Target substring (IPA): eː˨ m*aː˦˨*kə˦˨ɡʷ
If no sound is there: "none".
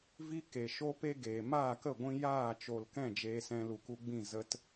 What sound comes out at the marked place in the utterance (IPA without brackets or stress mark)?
aː˦˨